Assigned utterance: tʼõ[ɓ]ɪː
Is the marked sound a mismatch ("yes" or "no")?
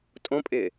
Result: yes